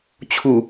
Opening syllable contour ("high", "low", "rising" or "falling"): low